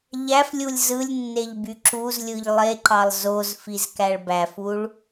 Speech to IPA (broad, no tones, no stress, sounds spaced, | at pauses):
ʎ æ f lʲ u lʲ z ɯ lʲ nː e ʎ b y ǁ u z lʲ ɯ ʎ lˠ e ǃ ɑ lˠ z o z f i z k æ ɭ b æ f u ɭ